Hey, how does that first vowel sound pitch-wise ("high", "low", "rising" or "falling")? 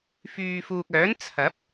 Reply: low